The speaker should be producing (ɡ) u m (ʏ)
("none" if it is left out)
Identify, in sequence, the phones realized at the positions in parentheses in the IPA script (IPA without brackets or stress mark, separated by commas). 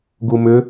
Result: ɡ, ʏ